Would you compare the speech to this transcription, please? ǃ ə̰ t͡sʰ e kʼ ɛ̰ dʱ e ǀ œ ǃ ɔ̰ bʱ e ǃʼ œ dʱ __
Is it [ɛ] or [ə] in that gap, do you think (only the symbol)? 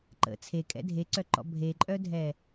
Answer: ɛ